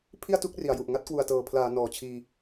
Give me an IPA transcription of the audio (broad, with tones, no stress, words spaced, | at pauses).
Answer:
pʰi˥˩a̯tu˦˥k̚ ri˩˦a̯ju˨˩ʔ ŋa˦˥t̚kwu˨˩a̯tɤː˨˩ pʰlaː˩˦ nɔː˨˩t͡ɕʰiː˧